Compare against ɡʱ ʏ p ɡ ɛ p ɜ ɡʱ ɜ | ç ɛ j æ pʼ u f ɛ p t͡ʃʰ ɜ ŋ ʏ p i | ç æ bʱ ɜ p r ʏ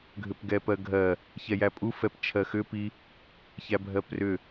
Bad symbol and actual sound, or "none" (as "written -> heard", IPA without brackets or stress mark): ŋ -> x